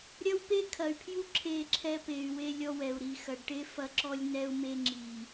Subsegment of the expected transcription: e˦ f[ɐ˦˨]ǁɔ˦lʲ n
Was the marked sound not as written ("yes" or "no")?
yes